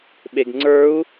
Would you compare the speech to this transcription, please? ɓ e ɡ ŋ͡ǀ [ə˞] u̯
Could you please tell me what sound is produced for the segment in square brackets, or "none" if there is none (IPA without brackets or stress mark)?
ə˞